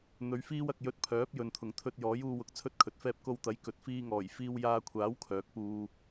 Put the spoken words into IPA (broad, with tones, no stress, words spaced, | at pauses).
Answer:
n̪ɵ˨˧ɥ fiː˥wɐ˨k̚ jɵ˧t̚pʰœː˨˥p̚ jɵ˨nt̪ʰʊ˨˩ŋ t̪ʰɵ˧t̚ jɔː˨˥juː˧wʊ˨k̚ t͡sʰɵ˥t̚kʰɵ˨t̚fɛː˥p̚ ko˧wt̪ɐ˨˥j kɵ˨t̚ fiː˧ŋɔː˨˩j fiː˧wjaː˧kʷʰaː˨˥w kʰœː˨˥k̚puː˧